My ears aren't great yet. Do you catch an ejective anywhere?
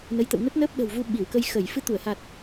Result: no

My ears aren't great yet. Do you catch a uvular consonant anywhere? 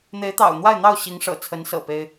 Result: no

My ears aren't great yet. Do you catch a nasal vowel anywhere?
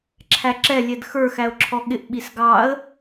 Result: no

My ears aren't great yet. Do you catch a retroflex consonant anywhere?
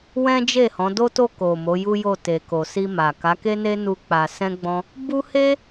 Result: no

